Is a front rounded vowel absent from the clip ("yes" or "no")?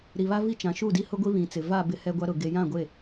yes